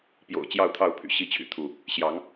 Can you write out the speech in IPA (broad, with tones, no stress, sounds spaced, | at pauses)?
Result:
p j o̰˨˩ ʊ̯ t͡ɕ j ɑ˥˨ ʊ̯ t̪ʰ ɑ˥˨ ʊ̯ pʰ y̰˨˩ ɕ i˥˨ t͡ɕʰ y̰˨˩ t̪ʰ u˥˨ | ɕ j ɑ˨˦ ŋ